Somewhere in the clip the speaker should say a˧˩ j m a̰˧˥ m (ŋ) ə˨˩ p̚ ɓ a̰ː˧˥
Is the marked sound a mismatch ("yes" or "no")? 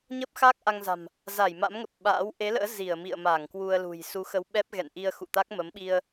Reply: no